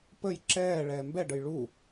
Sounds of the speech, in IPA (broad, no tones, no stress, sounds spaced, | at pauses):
p ə j ǁ ɛː ɭ ɛː m b ɛ ɖ ə j ɭ u